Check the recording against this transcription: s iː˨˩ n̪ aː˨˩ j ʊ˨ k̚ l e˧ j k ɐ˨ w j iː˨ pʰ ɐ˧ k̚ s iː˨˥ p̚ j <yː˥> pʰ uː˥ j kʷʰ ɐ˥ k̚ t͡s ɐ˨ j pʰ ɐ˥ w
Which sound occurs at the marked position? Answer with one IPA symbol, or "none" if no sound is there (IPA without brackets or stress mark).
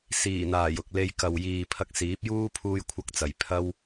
uː˥